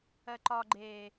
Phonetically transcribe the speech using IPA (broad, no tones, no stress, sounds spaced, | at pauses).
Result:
ɜ ǃ ɒ ɡ͡ǃ eː